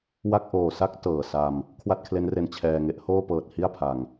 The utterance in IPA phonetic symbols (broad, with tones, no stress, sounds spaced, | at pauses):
w a˥˩ k̚ ʔ oː˨˩ s a˦˥ k̚ t ɤː˨˩ s a˧ m | kʰ w a˥˩ t̚ kʰ l e˦˥ n r e˧ n t͡ɕʰ ɛː˧ ŋ e˦˥ ʔ h oː˥˩ p ɤː˨˩ t̚ h i˥˩ a̯ pʰ a˨˩ ŋ